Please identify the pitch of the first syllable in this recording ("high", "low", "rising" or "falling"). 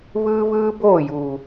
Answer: high